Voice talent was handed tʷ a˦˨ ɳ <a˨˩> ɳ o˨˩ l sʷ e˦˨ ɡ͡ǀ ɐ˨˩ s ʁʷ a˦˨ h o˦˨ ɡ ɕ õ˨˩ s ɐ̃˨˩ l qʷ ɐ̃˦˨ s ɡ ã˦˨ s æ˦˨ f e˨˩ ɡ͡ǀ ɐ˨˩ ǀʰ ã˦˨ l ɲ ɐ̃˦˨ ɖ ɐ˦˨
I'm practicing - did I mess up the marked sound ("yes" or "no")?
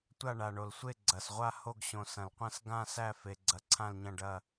no